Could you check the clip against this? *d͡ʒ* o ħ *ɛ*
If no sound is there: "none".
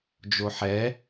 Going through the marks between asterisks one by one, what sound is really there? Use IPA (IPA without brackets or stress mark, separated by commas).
d͡ʒ, ɛ